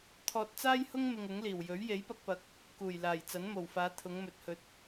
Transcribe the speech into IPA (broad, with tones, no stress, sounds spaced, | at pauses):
t̪ʰ ɔː˧ t̚ t͡s aː˥ j h ʊ˥ ŋ m ɪ˧ ŋ ʊ˨˥ ŋ l iː˨˩ w j ɵ˨˥ ɥ j e˨˥ j p ɐ˧ k̚ p ɐ˨˥ k̚ | k uː˨˩ j l aː˨˩ j t͡s ɐ˨˥ n m o˨˩ w f aː˨˧ t̪ʰ ʊ˨˧ ŋ m ɵ˨ t̚ h ɵ˨˥ t̚